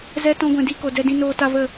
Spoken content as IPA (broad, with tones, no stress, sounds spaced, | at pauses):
z ɛ˧ t ɔ̃˧ ɡʷ ɛ̃˨ d i˦˨ k o˨ d ɛ˧ d ĩ˧ n oː˧ t a˧ v ə˦˨